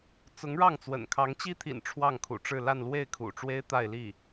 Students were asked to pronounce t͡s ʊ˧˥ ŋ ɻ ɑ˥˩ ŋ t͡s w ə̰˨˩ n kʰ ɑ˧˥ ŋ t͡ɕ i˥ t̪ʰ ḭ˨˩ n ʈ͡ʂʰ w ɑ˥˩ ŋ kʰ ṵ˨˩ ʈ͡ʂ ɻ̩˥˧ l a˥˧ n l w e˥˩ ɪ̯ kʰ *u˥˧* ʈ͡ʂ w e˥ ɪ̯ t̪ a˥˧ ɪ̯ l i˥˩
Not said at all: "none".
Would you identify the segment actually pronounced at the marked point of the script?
ṵ˨˩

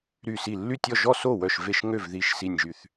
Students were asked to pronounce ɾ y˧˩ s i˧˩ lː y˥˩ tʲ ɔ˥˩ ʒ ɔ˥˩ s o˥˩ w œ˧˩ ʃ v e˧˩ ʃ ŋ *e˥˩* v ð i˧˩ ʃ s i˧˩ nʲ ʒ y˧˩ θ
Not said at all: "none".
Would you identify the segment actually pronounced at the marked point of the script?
ø˥˩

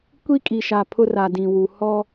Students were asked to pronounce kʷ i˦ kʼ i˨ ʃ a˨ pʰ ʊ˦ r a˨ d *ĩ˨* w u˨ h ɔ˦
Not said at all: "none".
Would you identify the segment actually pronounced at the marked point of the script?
ĩ˨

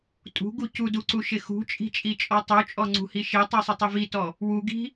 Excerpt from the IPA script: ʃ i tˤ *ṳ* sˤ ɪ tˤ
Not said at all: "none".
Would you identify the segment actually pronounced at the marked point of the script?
u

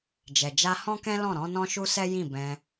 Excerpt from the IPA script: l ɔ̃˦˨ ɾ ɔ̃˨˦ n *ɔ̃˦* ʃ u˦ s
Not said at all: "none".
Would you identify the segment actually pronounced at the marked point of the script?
ɔ̃˦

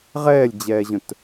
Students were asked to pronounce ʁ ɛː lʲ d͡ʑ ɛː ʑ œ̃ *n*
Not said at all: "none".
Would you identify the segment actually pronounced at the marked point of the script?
t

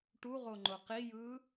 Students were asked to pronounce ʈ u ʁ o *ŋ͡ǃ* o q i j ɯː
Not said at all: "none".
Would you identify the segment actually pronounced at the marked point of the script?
ŋ͡ǃ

